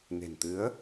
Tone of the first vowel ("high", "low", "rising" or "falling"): low